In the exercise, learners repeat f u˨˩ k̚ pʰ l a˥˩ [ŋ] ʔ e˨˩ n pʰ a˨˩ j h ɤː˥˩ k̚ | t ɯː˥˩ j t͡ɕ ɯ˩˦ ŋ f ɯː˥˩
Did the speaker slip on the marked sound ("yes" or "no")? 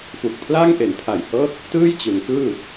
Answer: no